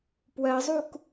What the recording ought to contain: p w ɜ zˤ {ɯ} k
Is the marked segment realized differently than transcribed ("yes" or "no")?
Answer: yes